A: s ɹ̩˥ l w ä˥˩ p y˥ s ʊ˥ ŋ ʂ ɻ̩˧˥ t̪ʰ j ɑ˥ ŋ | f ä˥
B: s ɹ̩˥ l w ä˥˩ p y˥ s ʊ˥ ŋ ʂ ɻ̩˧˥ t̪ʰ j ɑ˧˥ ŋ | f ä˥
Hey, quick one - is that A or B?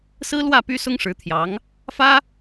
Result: B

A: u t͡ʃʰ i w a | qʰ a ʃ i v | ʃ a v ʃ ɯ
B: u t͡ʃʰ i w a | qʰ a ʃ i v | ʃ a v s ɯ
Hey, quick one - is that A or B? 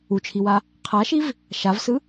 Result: B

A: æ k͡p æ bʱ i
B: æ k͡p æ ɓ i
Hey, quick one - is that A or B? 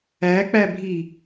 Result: A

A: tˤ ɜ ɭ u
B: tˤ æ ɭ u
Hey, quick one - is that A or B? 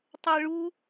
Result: A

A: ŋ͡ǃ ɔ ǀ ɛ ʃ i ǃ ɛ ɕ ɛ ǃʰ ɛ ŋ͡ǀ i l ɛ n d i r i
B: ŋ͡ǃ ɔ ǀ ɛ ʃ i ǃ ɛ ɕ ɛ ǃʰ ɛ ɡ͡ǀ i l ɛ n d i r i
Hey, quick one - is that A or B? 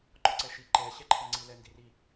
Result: A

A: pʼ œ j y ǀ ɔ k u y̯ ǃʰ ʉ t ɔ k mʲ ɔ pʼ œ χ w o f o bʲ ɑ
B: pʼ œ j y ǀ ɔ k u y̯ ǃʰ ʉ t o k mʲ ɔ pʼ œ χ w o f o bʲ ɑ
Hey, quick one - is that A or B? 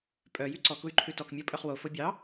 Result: A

